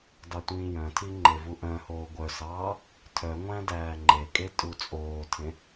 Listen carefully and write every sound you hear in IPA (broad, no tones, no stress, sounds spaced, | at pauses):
d ɑ tʷ ĩː j œ̃ tʰ i ŋ͡ǃ e v u ʔ œ̃ h oː ɡʷ œ s ɑː | tʰ œ ŋʷ æ̃ d æː ŋ͡ǃ e kʼ e tʼ u t͡sʼ oː tʰ ẽ